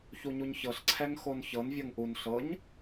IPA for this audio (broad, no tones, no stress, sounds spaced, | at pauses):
ç u ɲ u ɲ ç ɤ ɬ ǀʰ ɛ ŋ x o n ç ɤ n vʲ ɤ ŋ ʔ u n ɬ ɤ ɲ